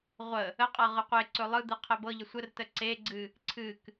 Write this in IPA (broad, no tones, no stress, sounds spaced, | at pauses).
ʁʷ ə | ə qʼ ɤ ʁ ɯ qʷ e ǀ ɵ lˠ ɯ d̪ ɯ qʰ ɛ b ɤ ʎ ə sʷ ə r t ə ǀ e ɡ͡ǀ ɨ | ǀʰ ɨ k